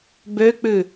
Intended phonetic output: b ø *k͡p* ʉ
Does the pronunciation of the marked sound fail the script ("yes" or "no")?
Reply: no